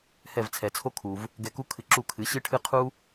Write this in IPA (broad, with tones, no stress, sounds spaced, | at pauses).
h ɛ˥˩ v t͡sʰ ɛ˩ t͡sʰ o˥ kʰ u˩ v | ɡ ɛ˧ k u˥ kʰ ɨ˧ ǁ u˥˩ kʰ ɨ˩˥ ɕ ɨ˥ ʈʰ ɨ˥ qʰ u˥